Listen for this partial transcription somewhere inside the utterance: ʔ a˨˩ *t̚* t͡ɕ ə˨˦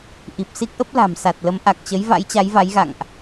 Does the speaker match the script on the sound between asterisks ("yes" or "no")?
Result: no